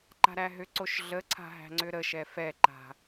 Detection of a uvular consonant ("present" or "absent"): absent